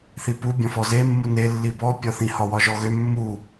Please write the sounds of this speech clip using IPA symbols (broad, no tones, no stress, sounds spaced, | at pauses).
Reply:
θ i p u bʲ ɔ̃ f ɔ z e mː u n e lː i b ɔ pʲ ɒ θ ĩ h ɒ w ɒ ʒ ɔ ɣ ø mː u